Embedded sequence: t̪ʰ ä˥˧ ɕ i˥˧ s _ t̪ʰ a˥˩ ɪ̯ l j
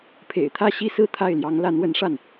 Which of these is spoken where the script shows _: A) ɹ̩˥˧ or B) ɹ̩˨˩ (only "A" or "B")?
A